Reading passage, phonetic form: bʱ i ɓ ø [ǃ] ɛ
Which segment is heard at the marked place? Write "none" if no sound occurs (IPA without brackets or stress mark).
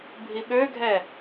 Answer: ɡʱ